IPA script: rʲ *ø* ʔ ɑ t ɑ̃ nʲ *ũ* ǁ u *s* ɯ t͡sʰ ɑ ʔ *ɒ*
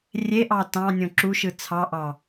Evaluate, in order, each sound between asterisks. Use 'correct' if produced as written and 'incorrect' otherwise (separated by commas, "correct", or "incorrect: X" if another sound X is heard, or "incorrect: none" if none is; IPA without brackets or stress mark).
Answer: incorrect: e, incorrect: õ, incorrect: ʃ, incorrect: ɑ